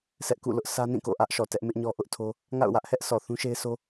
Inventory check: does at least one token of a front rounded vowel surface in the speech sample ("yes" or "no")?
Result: no